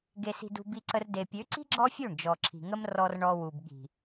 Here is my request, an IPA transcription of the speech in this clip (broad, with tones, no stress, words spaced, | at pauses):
ɡe˧si̤˧dṳ˧ bi˧ǀə˧r de˨pʲø˨˦ǀi̤˦ ɡ͡ǁɔ˦fʲø˦˨ɳ d͡ʒɔ˨ǁʰi̤˨ŋə˦m rɔ˧r ɳɔ˧wu˨bɠi̤˨